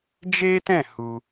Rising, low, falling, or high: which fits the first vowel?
high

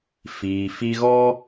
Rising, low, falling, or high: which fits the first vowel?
low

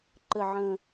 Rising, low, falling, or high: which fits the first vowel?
low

